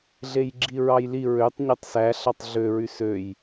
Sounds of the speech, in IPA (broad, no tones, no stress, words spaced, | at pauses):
ɮejɡ͡ǁiɹɑjli ɹøtˤ ɲøtˤsæ ɬɑtˤɮø ɹysøj